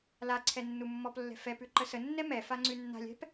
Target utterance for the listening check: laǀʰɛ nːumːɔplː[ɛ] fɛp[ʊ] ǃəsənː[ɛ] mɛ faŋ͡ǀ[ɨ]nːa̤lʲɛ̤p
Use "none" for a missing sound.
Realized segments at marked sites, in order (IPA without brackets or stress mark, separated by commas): ɛ̤, ʉ, ɛ, ʉ